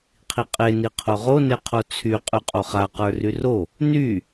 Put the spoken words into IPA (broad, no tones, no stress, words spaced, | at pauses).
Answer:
qʰiqʼe niqʰoʁo neqʰot͡sʰy qʼyqʼoχa qə˞ryro | ny